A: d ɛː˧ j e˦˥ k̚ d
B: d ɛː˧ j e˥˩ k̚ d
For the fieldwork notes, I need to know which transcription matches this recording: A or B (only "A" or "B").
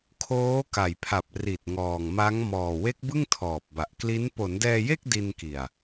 B